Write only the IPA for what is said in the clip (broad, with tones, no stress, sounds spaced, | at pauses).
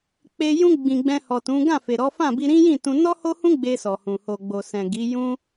k͡p e˧ j ũ˧ ɡ͡b ĩ˨ ɡ͡b ɛ̃˧ h ɔ˨ t ũ˨˦ ɡ ã˦˨ f e˨ ɾ ɔ˨˦ f ã˦˨ b i˧ ɾ ĩ˦ j ĩ˦˨ t ũ˧ n ɔ˦ h o˦ h ũ˦ ɡ͡b e˧ s ɔ˨ h ũ˨ h o˨ ɡ͡b o˨ s ɛ̃˨ ɡ i˨˦ j ũ˦